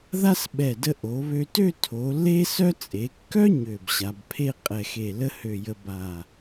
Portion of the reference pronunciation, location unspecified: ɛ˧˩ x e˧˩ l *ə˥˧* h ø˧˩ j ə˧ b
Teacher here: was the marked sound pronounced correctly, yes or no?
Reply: no